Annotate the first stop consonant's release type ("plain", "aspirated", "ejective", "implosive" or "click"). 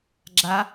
click